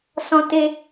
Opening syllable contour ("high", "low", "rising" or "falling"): high